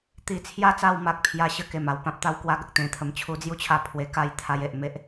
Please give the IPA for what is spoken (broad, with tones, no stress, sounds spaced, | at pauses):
t̪ i˧ t͡sʰ j a˥˧ t͡s a˥˧ w m a˦ k̚ pʰ j a˦ ɕ ə˦ k e˨˩ m a˥˧ w p ã˦ p̚ t̪ a˦ w k w a˦ ɡ ə˨ k̚ t̪ ẽ˧ t̪ʰ ə˧ m t͡ɕʰ u˧ d͡z j u˥˧ t͡ɕʰ a˧ pʰ w e˧ k a˥˧ j t̪ʰ a˧ j e˨ ʔ m e˦ ʔ